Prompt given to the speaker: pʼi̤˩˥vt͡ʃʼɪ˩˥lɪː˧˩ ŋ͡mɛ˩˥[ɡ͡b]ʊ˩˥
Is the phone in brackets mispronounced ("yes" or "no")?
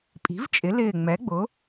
no